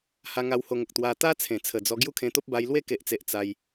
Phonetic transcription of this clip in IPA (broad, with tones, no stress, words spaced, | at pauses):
ha˧ŋa˧w ho˧ŋə˨k̚ t̪wa˧ t̪a˦ t͡sʰẽ˨˩t͡sʰə˨˩d͡zɔ˧ ɡju˦kʰẽ˧t̪o˦p̚ba˧j lwe˦ke˨ʔt͡se˨ʔ t͡sa˧j